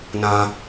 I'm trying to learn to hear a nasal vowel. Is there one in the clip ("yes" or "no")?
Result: yes